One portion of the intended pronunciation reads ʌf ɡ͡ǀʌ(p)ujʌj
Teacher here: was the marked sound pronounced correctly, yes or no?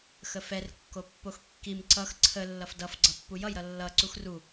no